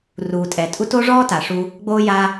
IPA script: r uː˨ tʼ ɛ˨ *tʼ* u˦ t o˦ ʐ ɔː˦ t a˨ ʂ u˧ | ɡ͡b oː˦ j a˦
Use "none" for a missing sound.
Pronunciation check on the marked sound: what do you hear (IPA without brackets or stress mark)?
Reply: tʼ